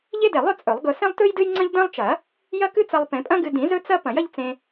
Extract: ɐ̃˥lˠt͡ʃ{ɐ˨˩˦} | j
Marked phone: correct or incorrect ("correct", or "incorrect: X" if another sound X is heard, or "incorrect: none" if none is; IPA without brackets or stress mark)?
correct